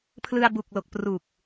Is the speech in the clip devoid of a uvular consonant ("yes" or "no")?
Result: yes